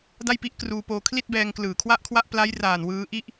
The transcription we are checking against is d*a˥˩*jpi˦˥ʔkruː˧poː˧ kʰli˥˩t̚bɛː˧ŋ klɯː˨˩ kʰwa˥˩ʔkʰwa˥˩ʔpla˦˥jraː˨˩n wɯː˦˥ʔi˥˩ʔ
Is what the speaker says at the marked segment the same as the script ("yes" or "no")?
yes